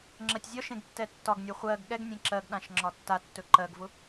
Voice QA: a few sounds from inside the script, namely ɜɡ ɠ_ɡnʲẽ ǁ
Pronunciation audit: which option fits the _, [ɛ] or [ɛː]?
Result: ɛ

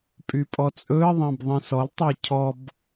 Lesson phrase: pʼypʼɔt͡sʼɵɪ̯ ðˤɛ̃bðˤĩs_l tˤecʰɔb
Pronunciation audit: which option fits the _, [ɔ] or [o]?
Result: ɔ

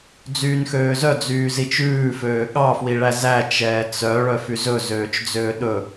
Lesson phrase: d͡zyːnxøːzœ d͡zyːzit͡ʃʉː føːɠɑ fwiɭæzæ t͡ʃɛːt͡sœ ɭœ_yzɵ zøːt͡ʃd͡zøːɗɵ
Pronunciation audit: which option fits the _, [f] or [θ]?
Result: f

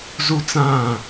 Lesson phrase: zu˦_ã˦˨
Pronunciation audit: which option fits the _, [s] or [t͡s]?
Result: t͡s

